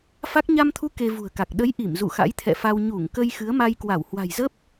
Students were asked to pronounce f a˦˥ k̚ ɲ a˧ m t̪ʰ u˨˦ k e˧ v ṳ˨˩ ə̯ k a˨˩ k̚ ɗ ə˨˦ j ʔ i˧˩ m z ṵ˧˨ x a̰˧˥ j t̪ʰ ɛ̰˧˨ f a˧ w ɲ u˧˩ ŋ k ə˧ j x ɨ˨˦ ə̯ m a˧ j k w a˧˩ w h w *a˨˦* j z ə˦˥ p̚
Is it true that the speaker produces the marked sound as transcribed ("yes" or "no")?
no